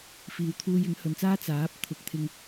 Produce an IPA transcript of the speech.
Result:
f iː˨˧ w t̪ʰ uː˧ j ɪ˨˥ ŋ h ɵ˨˧ n t͡s aː˥ t͡s aː˨˥ p̚ t̪ʰ ʊ˨ k̚ t̪ʰ ɪ˧ ŋ

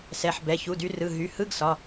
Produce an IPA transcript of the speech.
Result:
s ɛ˩˧˩ ħ b ɛ˩˧˩ ç u˩˧˩ d y˨˦ r ɯ˩˧˩ ɦ y˩˧˩ h ɯ˧˥˧ ɡ s ɒ˩˧˩

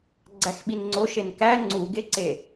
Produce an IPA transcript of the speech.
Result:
ɡ͡ǀ æ x ɓ i n ŋ͡ǀ o ʃ e n k æ ŋ͡ǀ u ɡ e ǀ e

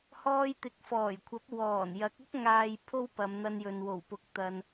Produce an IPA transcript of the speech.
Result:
h ɔː˧ j t̪ ɪ˨˥ k̚ f ɔː˨˩ j kʷʰ ɐ˨˥ p̚ w ɔː˨˩ n j ɐ˨˥ k̚ ʊ˥ k̚ ŋ aː˨ j pʰ o˥ w p ɐ˨˧ m n̪ ɐ˧ n j ɵ˨ n w o˨˩ w p ʊ˨ k̚ t̪ ɐ˨ n

